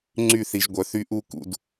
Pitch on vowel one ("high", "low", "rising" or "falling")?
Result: falling